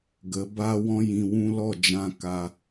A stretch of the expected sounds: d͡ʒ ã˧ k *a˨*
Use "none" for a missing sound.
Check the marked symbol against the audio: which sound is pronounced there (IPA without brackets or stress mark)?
a˧